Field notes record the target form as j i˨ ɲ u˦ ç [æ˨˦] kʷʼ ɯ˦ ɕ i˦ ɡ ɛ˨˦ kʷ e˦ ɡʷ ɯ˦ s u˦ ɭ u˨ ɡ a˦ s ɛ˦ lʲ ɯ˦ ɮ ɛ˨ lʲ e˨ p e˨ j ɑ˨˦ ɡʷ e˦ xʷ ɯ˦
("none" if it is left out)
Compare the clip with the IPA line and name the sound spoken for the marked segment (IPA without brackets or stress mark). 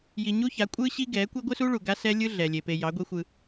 a˨˦